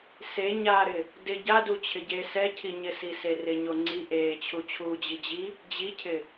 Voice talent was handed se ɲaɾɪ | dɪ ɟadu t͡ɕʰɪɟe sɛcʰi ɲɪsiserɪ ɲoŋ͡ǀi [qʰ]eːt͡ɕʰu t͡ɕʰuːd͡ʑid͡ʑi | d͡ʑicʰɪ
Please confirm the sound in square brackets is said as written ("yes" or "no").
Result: no